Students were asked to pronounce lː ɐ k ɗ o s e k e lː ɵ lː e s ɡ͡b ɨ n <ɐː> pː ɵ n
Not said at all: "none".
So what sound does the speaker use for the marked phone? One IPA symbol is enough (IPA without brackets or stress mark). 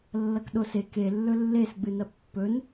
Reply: ɐ